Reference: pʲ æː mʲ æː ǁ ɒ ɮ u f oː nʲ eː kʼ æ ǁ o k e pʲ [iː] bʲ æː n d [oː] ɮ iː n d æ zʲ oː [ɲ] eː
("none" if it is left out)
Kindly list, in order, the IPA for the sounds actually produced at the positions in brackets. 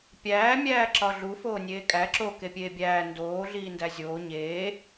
eː, oː, ɲ

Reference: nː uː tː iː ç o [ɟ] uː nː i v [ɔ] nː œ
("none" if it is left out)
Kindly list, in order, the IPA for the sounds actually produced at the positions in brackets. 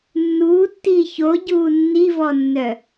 ɟ, ɔ

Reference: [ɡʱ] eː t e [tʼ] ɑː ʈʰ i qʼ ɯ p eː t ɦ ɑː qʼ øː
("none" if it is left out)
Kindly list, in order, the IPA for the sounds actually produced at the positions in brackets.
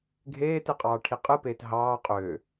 ɡʱ, qʼ

